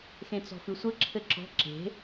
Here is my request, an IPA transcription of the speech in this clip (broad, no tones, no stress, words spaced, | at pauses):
xẽt͡sɔ̤fɨsʷɘ ǁʰɘǁɔ̤ ǁe̤